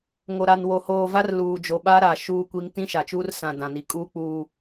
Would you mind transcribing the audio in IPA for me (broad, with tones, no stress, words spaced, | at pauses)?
ŋo˨ɾa˨nwo˨ hoː˨va˦r luː˨d͡ʒo˨ɓa˦ɾa˨ ʃuː˦kʷi˦ŋ tĩ˦ʃa˨t͡ʃuː˦rsã˨ dã˨ni˨kʼuː˦k͡puː˦